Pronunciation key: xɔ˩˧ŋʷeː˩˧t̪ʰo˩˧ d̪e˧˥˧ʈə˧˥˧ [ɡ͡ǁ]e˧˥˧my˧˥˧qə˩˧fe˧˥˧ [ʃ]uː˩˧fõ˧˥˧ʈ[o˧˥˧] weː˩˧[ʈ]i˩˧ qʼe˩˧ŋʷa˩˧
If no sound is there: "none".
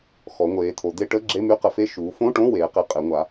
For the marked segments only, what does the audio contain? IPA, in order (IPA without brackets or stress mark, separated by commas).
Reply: ɡ͡ǁ, ʃ, õ˧˥˧, q